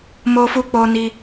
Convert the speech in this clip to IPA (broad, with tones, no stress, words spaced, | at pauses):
mo˧fu˧k͡po˧ni˧